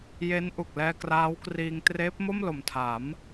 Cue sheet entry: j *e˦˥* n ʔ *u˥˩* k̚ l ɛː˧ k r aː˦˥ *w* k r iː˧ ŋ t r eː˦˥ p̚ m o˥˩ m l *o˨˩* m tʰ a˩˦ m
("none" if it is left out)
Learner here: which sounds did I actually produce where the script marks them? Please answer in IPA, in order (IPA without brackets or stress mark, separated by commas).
e˦˥, u˨˩, w, o˨˩